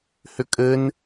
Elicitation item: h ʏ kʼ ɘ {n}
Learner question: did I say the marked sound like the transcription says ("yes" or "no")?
yes